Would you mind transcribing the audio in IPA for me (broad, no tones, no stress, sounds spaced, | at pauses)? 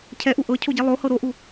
cʰ ɛ ʔ u ʔ ɤ cʰ o ɟ i lˠ o h ɤ ɾ o ʔ u